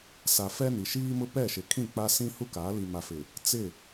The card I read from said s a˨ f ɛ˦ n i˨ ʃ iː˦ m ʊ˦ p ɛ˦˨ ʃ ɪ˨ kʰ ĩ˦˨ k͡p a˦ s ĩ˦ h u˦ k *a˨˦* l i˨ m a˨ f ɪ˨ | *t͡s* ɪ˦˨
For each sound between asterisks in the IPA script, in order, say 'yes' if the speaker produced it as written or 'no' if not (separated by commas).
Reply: yes, yes